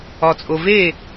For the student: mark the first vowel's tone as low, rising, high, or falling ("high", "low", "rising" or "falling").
low